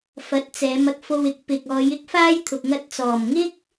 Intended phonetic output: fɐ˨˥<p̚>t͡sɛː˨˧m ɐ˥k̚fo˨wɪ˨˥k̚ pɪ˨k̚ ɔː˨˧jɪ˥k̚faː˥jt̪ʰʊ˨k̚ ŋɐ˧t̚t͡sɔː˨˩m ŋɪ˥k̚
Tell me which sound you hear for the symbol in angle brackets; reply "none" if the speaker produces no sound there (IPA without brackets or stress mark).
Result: t̚